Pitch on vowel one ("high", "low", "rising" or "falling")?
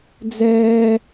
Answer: high